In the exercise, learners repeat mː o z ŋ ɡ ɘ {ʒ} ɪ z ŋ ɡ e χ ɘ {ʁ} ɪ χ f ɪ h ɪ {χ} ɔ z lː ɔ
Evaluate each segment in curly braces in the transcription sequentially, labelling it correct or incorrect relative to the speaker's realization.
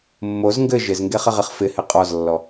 correct, correct, incorrect: qʼ

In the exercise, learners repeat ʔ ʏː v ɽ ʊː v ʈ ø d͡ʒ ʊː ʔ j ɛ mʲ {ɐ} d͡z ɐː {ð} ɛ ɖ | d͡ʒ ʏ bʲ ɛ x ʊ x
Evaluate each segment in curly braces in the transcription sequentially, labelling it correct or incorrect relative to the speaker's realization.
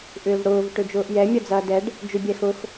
correct, incorrect: d

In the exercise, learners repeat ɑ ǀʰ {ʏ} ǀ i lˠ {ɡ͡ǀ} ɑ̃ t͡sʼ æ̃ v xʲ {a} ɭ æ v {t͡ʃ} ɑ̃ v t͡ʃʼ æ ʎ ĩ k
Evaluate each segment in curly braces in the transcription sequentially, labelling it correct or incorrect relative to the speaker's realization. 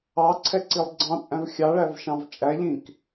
incorrect: ɛ, correct, incorrect: ɑ, incorrect: ʃ

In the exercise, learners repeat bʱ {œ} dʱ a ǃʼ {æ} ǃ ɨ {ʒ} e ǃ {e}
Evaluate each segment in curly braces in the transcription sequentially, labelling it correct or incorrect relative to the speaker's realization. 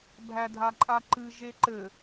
incorrect: æ, incorrect: a, correct, incorrect: ɘ

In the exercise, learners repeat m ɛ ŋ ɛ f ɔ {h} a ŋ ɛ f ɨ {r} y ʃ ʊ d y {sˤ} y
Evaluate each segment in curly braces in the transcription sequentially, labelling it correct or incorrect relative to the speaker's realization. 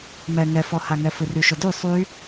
correct, correct, correct

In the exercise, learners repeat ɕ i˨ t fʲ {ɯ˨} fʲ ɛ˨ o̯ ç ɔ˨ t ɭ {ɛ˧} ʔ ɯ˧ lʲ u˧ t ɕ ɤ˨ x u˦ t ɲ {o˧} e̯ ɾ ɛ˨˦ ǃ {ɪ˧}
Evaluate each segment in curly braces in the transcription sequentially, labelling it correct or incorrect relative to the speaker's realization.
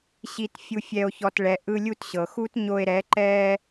incorrect: u˨, incorrect: ɛ˨, correct, incorrect: ɛ˧

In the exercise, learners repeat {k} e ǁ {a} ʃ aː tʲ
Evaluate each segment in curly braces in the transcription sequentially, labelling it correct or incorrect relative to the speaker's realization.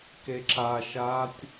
correct, correct

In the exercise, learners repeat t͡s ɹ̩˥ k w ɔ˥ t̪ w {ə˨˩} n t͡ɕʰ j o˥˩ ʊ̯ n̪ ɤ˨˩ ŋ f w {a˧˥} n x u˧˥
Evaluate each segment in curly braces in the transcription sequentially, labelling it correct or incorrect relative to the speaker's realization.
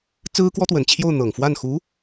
correct, incorrect: a˥˩

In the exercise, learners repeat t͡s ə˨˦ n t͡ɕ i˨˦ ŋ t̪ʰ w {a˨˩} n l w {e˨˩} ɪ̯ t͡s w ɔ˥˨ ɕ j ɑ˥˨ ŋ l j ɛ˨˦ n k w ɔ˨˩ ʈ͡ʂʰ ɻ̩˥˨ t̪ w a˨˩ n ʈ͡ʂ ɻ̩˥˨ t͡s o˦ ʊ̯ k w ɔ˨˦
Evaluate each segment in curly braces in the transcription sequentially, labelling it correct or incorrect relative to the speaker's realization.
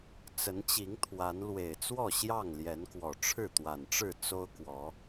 incorrect: a˨˦, correct

